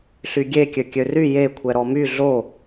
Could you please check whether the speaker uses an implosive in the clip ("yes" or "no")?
no